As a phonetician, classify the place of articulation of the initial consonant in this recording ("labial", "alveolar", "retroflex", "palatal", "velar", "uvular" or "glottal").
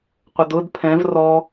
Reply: uvular